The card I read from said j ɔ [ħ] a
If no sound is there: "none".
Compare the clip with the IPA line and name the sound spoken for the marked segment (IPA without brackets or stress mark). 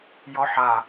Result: ħ